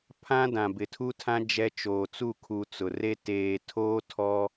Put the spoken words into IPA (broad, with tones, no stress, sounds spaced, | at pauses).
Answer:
pʰ ã˦ d ã˨ b ɪ˨ tʰ u˦ tʰ ã˦ d͡ʒ ɛ˦ t͡ʃ oː˨ t͡s u˦˨ kʰ u˨ t͡s ʊ˨ r e˦ t eː˨ tʰ oː˦ tʰ ɔ˦